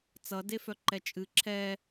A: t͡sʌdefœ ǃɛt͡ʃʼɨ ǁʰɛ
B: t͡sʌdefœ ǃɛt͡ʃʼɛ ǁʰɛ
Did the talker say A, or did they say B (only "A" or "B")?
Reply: A